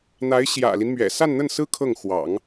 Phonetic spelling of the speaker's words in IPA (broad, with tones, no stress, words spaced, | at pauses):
n̪a˧˥ɪ̯ɕjä̰˨˩li˦nmɥɛ̰˨˩ sa˥˧nn̪ə˥˩nsɹ̩˥ kʰɤ˥˩ŋ xwɑ̰˨˩˦ŋ